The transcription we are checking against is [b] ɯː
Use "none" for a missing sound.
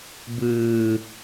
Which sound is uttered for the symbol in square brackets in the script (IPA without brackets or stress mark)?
b